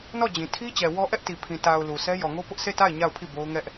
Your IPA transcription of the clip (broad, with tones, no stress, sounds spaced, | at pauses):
n ɔ˦˨ d͡ʑ ĩ˨ tʰ i˦ t͡ɕ ɛ˨ w ɔ˦ ʔ ɛ˦ ʔ t i˨ pʰ ĩ˨ t a˨ ʊ̯ l u˨ s ɛ˦ j ɔ˨ ŋ o˦ p ʊ˦ ʔ sʰ e˦˨ t a˦˨ ɪ̯ ɲ a˦˨ ʊ̯ pʰ i˦˨ b o˦ ʊ̯ ŋ ɛ˦ ʔ